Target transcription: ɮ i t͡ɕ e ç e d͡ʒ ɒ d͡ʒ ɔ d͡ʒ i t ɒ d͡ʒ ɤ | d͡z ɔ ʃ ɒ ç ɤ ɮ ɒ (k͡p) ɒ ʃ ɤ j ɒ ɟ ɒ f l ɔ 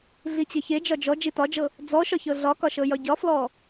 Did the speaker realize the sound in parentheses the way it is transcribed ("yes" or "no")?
no